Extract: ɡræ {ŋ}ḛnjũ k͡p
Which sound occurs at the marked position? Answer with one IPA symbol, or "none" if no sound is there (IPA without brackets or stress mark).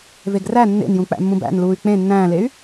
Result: nː